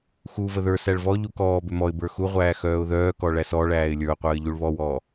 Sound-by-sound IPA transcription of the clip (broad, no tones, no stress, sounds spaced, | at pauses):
x u v ə ð ə˞ s æ ɭ v ɔ ʎ u k ɔː b ʏ m ɔ ɪ̯ b ə˞ x u ʁʷ æː x œː ʊ̯ ð œː k ɔ ɭ æ s ɔ ɭ æː ɪ̯ lʲ ə˞ ʊ̯ qʷ əː ɪ̯ ʎ u ɭ β ɔ w ɔː